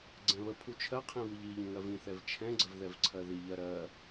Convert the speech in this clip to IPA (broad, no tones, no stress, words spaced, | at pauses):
ɡ͡ǀɛ̃βəpʰu t͡ʃʰɜqʰĩ βɨʎiʎə̃ ŋɜvĩθɛv t͡ʃʰɛ̃ɡ͡ǀəv ðɛvǀʰɜðiʎɜ ɾɜ